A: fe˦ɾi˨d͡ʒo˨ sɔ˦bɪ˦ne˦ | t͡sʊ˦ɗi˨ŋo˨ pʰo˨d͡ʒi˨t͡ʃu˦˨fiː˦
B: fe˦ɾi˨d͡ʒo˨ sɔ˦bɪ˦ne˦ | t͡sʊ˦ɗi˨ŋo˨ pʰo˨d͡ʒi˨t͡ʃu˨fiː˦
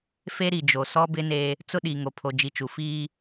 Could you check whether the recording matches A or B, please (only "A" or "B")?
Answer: B